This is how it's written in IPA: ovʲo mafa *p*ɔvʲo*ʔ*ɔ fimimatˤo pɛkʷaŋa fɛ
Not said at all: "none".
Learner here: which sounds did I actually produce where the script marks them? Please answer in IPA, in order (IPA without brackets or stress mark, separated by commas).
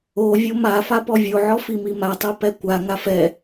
p, ʕ